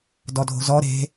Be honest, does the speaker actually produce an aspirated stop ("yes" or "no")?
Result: no